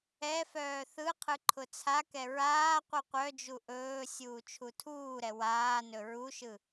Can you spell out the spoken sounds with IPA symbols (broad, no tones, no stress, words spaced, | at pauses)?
ɛfœː θɯqʰɯ ǃʰʊt͡sʰakɛ ɹaː qʷɯqʷœd͡ʒu ʔɵː sʲuːt͡ʃʰutʰuːɾɛ waːnɵ ɹuʃɯ